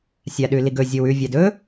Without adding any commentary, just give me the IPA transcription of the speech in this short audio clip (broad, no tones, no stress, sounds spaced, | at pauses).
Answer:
sʲ a ɗ ʉ l i ɡ ɵ zʲ o w ʉ vʲ a d ɵ